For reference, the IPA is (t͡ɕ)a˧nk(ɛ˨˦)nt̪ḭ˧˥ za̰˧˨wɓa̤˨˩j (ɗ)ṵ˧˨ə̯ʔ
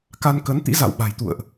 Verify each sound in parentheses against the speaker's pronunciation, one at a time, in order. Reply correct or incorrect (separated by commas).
incorrect, incorrect, incorrect